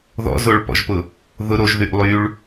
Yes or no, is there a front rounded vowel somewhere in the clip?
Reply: yes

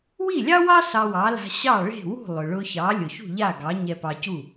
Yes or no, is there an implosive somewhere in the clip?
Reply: no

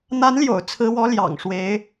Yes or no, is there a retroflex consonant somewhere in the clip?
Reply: yes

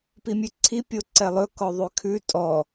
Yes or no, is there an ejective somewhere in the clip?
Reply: yes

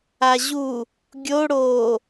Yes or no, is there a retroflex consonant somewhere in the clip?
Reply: yes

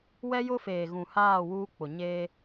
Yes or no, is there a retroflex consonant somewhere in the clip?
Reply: no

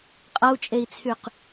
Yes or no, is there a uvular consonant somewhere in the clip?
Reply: yes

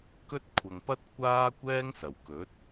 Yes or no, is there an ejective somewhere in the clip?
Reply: no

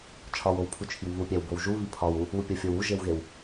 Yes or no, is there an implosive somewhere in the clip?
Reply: no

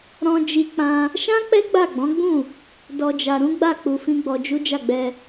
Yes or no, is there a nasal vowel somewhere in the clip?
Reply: yes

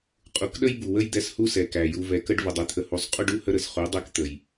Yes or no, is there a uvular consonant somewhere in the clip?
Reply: yes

